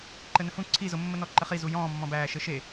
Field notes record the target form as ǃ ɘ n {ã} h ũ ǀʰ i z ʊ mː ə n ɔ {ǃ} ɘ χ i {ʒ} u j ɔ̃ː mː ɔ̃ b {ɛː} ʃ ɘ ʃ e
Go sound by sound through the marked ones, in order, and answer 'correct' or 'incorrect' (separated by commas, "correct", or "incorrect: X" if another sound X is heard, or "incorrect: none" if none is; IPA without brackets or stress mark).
incorrect: ə̃, correct, incorrect: z, incorrect: æː